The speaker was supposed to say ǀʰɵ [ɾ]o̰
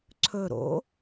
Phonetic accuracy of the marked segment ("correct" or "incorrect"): correct